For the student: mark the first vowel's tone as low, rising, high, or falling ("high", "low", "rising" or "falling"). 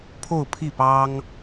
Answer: falling